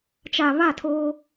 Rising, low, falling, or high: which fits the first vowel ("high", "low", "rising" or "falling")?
low